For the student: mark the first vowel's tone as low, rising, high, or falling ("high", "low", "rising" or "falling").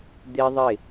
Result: high